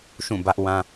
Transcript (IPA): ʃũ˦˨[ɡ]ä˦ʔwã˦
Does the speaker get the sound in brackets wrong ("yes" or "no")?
yes